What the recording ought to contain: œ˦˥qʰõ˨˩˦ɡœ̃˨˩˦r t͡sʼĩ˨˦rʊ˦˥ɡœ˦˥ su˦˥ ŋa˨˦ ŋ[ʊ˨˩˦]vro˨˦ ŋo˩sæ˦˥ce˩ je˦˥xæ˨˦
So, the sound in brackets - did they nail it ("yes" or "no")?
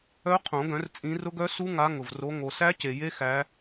no